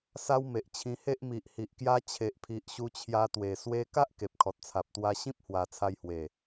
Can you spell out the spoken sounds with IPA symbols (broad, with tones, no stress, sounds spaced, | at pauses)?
s a˦ w m e˨ ʔ t͡ɕʰ ĩ˧ h e˦ ʔ m i˨ ʔ h i˨ ʔ k j a˦ t͡ɕʰ e˨ ʔ pʰ i˨ ʔ ɕ u˧ t͡ɕʰ j a˧ t̪ w e˨˩ s w e˧ k a˦ ʔ k e˨ p̚ kʰ ɔ˨ t̚ t͡sʰ a˨ p̚ t̪ w a˧ ɕ ĩ˦ p̚ h w a˨˩ t͡sʰ a˧ j h w e˨˩